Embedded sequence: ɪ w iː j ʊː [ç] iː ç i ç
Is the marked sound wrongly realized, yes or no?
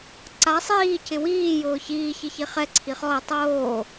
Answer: no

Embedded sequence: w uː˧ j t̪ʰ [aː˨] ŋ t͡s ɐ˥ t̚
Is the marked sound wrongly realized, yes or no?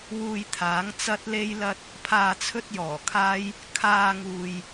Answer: yes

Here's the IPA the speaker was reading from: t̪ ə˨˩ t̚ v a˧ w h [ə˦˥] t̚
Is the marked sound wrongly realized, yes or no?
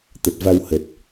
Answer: yes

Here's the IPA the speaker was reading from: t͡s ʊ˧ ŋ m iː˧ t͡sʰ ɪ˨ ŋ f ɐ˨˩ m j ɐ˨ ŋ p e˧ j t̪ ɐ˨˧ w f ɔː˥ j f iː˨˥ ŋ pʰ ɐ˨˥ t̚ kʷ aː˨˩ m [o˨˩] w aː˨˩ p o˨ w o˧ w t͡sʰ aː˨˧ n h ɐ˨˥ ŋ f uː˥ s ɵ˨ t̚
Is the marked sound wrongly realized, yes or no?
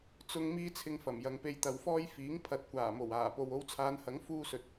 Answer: no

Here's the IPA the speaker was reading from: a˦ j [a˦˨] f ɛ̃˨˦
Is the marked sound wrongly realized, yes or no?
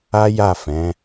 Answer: no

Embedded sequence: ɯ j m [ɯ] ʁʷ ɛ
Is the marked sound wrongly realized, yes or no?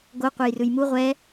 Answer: yes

